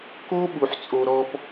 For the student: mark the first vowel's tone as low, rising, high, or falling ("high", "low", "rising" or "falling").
high